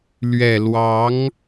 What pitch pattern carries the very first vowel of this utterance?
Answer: low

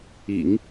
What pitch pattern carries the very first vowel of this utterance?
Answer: low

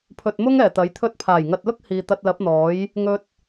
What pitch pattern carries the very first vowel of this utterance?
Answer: low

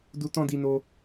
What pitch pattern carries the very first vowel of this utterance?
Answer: high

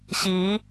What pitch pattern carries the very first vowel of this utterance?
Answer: rising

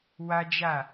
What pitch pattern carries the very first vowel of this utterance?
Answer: high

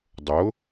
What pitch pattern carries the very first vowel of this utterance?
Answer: rising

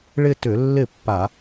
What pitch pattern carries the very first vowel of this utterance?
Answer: falling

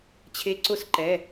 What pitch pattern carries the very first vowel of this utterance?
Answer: rising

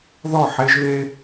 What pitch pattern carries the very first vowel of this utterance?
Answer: falling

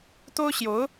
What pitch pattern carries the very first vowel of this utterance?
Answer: high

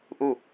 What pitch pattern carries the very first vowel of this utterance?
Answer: falling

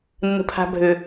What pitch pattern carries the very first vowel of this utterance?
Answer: low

